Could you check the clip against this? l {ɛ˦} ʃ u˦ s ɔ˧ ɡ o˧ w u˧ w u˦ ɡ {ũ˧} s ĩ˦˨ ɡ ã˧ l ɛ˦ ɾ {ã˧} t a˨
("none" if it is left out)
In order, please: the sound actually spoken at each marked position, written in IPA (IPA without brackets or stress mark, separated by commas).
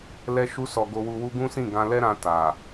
ɛ˦, ũ˦, ã˧